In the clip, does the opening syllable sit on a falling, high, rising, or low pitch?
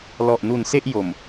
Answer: low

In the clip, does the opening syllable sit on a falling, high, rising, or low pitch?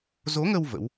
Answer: rising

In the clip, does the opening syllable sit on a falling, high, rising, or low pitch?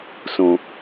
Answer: low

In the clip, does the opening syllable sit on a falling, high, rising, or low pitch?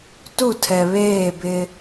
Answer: falling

